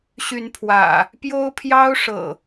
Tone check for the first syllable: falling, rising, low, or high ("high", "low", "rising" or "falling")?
rising